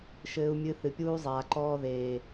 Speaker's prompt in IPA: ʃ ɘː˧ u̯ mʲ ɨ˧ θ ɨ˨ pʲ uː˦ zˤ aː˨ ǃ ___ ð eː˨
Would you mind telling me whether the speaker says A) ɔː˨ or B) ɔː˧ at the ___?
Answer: B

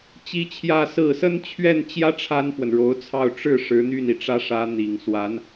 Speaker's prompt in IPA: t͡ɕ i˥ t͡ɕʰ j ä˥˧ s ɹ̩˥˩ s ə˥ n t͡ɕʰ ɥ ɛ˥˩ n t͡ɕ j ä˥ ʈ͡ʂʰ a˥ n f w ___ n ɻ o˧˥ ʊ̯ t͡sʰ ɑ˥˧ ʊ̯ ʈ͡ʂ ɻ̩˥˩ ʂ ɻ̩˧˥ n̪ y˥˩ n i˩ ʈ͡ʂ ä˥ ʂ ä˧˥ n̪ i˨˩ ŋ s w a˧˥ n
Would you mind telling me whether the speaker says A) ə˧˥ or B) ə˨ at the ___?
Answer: B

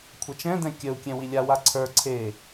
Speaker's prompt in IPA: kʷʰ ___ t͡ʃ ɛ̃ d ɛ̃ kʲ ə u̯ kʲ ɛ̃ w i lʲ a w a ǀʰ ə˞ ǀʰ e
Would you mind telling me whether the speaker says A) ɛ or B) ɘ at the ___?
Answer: A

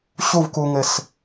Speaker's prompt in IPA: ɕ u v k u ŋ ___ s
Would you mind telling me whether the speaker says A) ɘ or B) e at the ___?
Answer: A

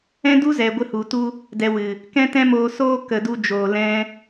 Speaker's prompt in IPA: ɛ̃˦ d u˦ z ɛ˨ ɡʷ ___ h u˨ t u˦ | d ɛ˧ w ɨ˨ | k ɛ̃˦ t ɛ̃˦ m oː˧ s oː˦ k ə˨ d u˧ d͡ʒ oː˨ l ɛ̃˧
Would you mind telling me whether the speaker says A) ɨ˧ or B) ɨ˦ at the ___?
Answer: A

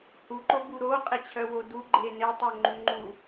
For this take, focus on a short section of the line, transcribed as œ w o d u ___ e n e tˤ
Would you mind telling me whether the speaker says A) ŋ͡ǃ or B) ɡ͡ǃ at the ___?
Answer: B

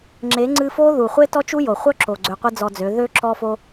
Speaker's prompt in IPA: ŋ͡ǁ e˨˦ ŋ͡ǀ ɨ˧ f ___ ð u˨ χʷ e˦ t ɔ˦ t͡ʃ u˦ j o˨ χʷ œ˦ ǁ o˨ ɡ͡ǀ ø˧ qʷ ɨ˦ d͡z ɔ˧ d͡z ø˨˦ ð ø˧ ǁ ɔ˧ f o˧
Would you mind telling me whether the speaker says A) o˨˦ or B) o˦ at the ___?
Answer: B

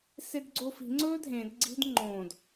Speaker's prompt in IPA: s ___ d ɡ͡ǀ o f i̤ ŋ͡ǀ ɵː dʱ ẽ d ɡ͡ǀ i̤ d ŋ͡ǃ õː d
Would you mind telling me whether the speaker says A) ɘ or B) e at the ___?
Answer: B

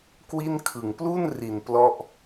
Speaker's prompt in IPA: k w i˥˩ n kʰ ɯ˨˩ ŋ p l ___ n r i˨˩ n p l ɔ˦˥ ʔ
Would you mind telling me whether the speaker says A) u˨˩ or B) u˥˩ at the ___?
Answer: B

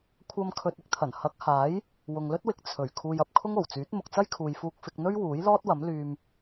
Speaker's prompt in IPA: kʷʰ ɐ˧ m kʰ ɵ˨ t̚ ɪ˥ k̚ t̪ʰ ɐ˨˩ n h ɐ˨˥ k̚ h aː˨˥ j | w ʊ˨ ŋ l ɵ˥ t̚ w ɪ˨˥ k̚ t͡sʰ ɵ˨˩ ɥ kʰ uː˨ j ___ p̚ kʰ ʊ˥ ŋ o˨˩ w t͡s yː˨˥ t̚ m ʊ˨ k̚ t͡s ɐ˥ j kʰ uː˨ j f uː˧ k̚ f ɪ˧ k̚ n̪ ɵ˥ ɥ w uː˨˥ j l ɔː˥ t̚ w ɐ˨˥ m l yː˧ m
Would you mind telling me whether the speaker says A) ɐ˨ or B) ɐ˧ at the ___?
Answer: A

